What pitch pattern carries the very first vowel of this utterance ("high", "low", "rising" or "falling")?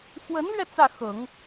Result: rising